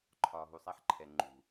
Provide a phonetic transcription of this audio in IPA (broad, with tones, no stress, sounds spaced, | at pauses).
ǃʰ ɒː˨ ɦ u˨ sˤ æ˦ ħ ǃʰ ɛ˨ ŋ͡ǃ ṳ˨